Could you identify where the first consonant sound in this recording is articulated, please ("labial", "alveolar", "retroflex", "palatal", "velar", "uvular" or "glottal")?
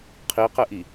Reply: uvular